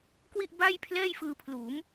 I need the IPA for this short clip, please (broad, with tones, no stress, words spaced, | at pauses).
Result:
kwi˥˩ʔba˥˩jpʰlɛː˥˩j fɯː˧pʰluː˩˦m